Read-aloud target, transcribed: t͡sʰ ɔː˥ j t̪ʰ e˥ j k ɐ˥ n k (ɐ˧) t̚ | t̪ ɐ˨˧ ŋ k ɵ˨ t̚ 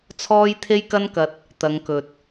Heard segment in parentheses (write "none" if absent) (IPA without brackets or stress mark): ɐ˧